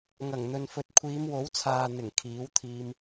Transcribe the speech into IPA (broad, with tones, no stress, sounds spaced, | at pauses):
ŋ ɐ˨˩ ŋ n̪ ɵ˨ n f ɵ˨ t̚ kʷʰ iː˨˧ m w o˨˥ w t͡sʰ aː˨ n̪ ɪ˨˩ ŋ kʰ iː˨˥ w t̪ʰ iː˧ m